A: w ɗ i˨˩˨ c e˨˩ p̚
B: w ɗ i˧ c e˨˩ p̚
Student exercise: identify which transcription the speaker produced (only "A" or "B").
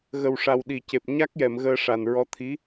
A